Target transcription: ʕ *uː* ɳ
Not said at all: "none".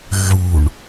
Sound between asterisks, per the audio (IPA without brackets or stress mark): u